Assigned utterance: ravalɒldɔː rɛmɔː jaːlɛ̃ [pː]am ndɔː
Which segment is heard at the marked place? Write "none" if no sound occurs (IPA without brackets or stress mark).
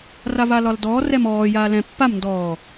pː